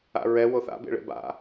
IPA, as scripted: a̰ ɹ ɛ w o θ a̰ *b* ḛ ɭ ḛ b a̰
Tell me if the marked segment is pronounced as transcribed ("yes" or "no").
yes